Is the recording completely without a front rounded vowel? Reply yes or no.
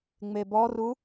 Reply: yes